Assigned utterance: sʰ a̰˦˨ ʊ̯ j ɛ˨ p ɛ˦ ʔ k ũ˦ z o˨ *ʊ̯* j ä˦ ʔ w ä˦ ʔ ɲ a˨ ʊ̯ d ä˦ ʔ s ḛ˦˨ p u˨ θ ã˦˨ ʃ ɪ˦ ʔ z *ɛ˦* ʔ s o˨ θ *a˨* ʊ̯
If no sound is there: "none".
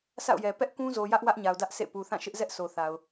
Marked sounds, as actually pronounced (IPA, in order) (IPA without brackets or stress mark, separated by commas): none, ɛ˦, a˨